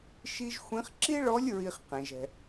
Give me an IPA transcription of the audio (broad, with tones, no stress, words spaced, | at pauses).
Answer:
ʃi˥ʒ xʷĩ˧˥χ ǁi˥ɭɔ˧˥lʲ ɹi˧χ qẽ˩ʒɛ̤˩